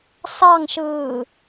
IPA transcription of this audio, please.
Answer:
s ɑ ŋ ʃ ɯː

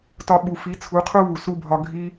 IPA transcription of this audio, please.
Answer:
t ɒ˧ ɓ u˨ f i˨˦ t͡sʰ u˨˦ qʰ u˦ β u˨ s u˧ bʱ ɒ˧ ɡʱ i˦

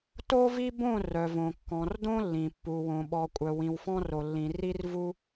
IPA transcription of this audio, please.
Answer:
t o˦ v i˦ b õ˦˨ r œ˨ v õ˨ kː ɔ̃˨ r d õ˦ lː ĩ˨ pː u˨ w õ˨ ɓ ɔ˨ kʷʼ œ˨ w ĩ˨ w f ɔ̃˦ r o˨ lː ĩ˨ r i˦ r v u˦

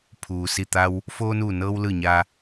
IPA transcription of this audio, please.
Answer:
pʰ uː˩ s i˧˩ t̪ a˧ w | f oː˧ n uː˧˩ n ɤː˧ w l ɯː˧˩ ɲ aː˧

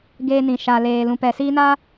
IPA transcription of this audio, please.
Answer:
ɡ eː˦ n ĩ˨ ʃ a˨ l eː˨ l ũ˨ p ɛ˨ s iː˦ n a˦

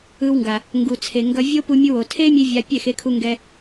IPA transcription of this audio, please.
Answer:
ɯ˧ w ŋ ɡ a˨ | ŋ ɡ u˨ t͡sʰ e˨ ŋ ɡ ʌ˧ vʲ o˦ p u˧ mʲ u˧ w o˨ tʰ e˦ mʲ e˧ vʲ a˧ pʲ ɛ˦˨ x e˧ kʰ u˧ ŋ ɡ ɛ˧

